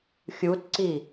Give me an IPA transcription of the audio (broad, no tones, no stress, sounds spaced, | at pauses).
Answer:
xʲ u t ǀ i